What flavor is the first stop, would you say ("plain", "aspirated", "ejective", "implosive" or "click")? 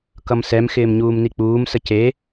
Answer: plain